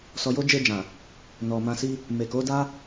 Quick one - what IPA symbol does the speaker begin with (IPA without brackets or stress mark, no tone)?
s